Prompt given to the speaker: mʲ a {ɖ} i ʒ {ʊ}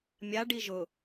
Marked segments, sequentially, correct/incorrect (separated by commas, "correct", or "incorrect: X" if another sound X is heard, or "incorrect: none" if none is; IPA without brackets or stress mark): correct, correct